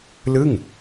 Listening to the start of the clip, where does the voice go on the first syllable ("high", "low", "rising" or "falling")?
falling